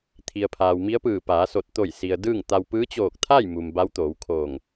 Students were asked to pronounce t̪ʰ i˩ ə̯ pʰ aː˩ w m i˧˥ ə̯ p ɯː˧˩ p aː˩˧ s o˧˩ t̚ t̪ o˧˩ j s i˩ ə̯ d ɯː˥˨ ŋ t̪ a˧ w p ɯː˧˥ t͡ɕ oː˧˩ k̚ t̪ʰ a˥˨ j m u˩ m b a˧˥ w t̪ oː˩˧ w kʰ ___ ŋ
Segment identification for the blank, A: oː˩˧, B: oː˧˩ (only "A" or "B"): B